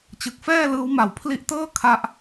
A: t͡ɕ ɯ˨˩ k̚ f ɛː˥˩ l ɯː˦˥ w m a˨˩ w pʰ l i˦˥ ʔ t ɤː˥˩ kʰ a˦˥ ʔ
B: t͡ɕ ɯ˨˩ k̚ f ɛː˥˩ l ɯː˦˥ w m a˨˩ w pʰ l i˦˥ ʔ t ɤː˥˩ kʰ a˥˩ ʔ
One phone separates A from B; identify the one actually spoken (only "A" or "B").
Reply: A